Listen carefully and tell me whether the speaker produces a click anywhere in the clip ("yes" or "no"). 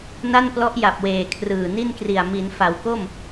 no